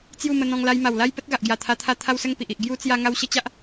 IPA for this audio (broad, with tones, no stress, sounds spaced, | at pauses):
t͡s j u˥˧ m ə˧ n̪ ɔ̃˧ ŋ l a˧ j m a˨˩ w l a˦ j p ə˦ t̚ ɡ a˨ ʔ ɡ j a˨˩ t̪ʰ a˧ t̪ʰ a˧ t̪ʰ a˥˧ w s ə˥˧ ŋ p i˨ ʔ i˨ ʔ ɡ j u˦ t͡s j a˧ ŋ a˧ w ɕ ə˦ t͡ɕ a˦ ʔ